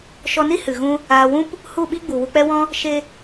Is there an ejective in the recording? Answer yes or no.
no